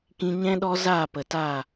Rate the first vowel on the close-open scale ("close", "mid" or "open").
close